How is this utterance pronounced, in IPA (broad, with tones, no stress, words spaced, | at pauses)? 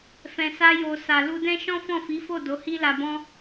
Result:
fɛ̃˨sa˧jo˨ sa˨lu˧dɛ̃˦ ʃɔ̃˦fɔ̃˦˨fi˨˦fo˦˨ do˨˦hi˦la˧bɔ̃˦